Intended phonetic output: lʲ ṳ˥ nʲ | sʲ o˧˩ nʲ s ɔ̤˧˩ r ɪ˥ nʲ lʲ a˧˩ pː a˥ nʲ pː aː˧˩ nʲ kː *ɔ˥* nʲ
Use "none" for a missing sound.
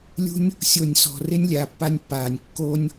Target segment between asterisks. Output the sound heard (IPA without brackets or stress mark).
o˥